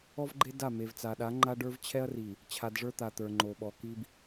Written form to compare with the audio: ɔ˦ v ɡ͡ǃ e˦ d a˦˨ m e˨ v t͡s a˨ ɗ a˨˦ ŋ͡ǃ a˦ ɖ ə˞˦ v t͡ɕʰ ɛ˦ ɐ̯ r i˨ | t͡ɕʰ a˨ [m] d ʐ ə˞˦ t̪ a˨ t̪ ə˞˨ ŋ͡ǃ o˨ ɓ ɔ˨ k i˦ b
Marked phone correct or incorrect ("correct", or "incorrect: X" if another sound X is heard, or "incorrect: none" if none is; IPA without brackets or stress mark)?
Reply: incorrect: none